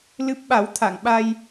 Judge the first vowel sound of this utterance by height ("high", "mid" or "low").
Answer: high